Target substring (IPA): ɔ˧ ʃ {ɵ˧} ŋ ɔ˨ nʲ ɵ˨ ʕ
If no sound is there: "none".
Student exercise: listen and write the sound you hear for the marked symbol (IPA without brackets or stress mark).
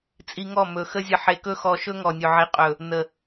ɵ˦